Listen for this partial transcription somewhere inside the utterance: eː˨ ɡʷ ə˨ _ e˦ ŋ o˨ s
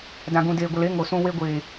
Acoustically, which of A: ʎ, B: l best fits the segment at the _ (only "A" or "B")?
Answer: B